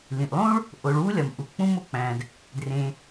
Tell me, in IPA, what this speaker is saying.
l ĩ˩ ʔ lˠ ũ˥ ɭ | ʔ o˩ ɭ w u˥ lʲ ɒ˩ m ʔ u˩ k͡p ũ˥ m o˥ k͡p æ̃˩ d | d r ẽ˩

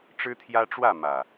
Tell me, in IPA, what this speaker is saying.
ʈ͡ʂ ɻ̩˦ t̪ʰ j ä˦ ʈ͡ʂ w ä˥˨ m ä˨˩

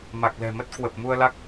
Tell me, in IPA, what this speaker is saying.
m a˨˩ k̚ l ɛ̤˨˩ m ə˦˥ t̚ k w ə˨˩ p̚ m u˧ ə̯ l a˦˥ k̚

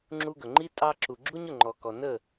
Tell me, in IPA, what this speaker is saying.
ŋ͡ǁ u˧ ɡ ɵ˨ ŋ͡ǃ i˦ tʼ ɑ˧ ǁ u˨ ɡ͡ǁ u˦ ɲ ʊ˦˨ ŋ͡ǃ ɔ˨ k ɔ˨ n ə˦˨

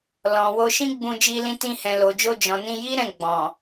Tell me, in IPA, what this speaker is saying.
l ɔ̃˨ w o˧ ʃ ĩ˦ ɡ͡b ũ˧ d͡ʒ i˧ l ĩ˧ t ĩ˧ h ɛ̃˨ l o˨ d͡ʒ o˧ d͡ʒ ɔ̃˨ n ĩ˧ j i˦ ɾ ɛ̃˦˨ ɡ͡b ɔ̃˨

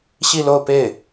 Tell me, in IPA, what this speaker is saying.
ɕ i˥˧ l o˥˧ ʊ̯ p e˥˩ ɪ̯

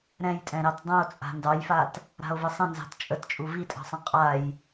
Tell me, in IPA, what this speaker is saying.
ɾ ɛ̃ j tʼ ɛ̃ ɾ ɑ t dˤ ũ o̯ t͡sʼ a̤ n d ɑ j f a t | ɾ a̤ o̯ v ɨ sˤ ə̃ n z ɑ̤ t t͡ʃʼ ə t t͡ʃʼ u v i tʼ ɑ̤ sˤ ə̃ qʼ a j

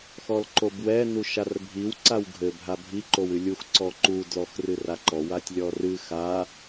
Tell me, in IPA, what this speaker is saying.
x ɔ l ǃ o b w ɛ n u ʃ a r bʱ i w ǀ a w ɡʱ ɘ bʱ a bʱ i ǃ o w ɨ lʲ u x ǀ ɔ ǃ u d l ɔ x r ɨ r a ǃ ɔ w a tʲ lʲ ɔ r ɨ x a

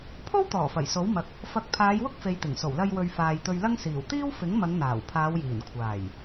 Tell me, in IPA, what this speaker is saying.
pʰ o˥ w t̪ ɔː˨˩ f ɐ˨˩ j s o˨˥ w m ɐ˧ k̚ | f ɐ˨˥ k̚ pʰ aː˨˧ j w ʊ˥ k̚ f e˨˧ j t̪ ɪ˨˩ ŋ s o˨˩ w l ɐ˧ j w ɵ˨ ɥ f aː˨ j t̪ ɵ˧ ɥ l ɐ˥ ŋ s iː˨˩ w t̪ iː˥ w f ɪ˨˥ ŋ m ɐ˨˧ ŋ n̪ aː˨˩ w pʰ aː˨˧ w j iː˨˩ n kʷʰ aː˨˩ j

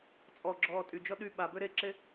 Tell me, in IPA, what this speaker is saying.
t͡sʼ ɔ ɡ͡ǁ ɔː tʼ y d͡ʒ ɔ ɗ y ɓ a b ø ɾ e ǁ e

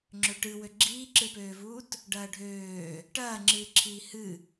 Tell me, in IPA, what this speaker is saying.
ŋ͡ǁ ø ʈ ɨ w ø ɡ͡ǁ iː ǁ ɨ p øː v uː t | ɖ ɐː ɖʱ øː | ʈ ɐː ŋ͡ǁ ɨː ǁʰ iː h ɨ

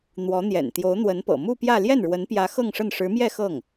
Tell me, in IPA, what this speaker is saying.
n̪ w ɔ˧˥ n̪ j ɛ̰˨˩ n t̪ j o˧˥ ʊ̯ n̪ w ə˧˥ n p ɤ̰˨˩ m u˥˧ p j ä˥˧ l j ɛ˥˩ n ɻ w ə˧˥ n p j ä˧˥ x ɤ˥˧ ŋ ʂ ə˥˩ n ʂ ɻ̩˧˥ m j ɛ˥˧ x ɤ˥˩ ŋ

